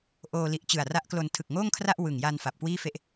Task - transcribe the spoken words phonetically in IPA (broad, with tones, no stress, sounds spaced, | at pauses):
ʔ oː˧ l i˨˩ ʔ t͡ɕ ɯ˨˩ a̯ r a˦˥ ʔ k l o˧ n tʰ ɯ˨˩ k̚ ŋ oː˥˩ ŋ kʰ r a˥˩ ʔ w ɯ˨˩ ŋ j a˧ n f a˨˩ p̚ k w iː˥˩ f e˥˩ ʔ